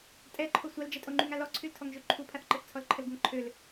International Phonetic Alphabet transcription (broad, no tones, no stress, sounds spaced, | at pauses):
tʼ ɛ ǃʰ o sʷ a l d͡ʒ ɛ tʼ o ŋ͡ǃ y ŋ a l ɔ ǀʰ y l tʰ ɔ ŋ ʒ ø ǃʰ u pʰ a θ ǃ ə θ t͡sʰ ɔ l ǃʰ ə l ɡ ə ŋ ǃʰ ø l